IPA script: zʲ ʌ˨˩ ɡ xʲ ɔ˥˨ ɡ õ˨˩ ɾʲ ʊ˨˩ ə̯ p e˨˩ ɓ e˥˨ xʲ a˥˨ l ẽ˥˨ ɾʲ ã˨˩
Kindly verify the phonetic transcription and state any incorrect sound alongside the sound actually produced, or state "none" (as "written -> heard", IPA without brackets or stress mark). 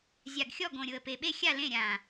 ʌ˨˩ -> a˨˩